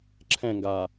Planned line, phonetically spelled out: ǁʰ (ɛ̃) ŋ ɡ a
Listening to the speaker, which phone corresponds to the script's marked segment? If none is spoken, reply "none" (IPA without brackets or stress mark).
ɛ̃